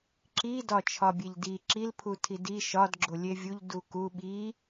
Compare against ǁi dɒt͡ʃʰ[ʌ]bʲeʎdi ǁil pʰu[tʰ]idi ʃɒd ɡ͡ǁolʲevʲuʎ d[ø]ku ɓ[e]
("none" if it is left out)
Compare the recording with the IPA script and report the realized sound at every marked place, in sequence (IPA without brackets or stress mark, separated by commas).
ɒ, tʰ, u, i